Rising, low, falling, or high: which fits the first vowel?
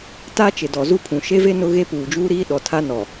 high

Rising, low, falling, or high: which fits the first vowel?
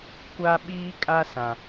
high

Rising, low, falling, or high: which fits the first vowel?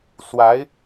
rising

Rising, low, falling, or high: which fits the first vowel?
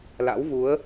rising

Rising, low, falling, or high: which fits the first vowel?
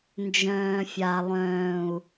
low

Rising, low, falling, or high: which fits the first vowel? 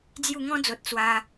falling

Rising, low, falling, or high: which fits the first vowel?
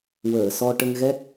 low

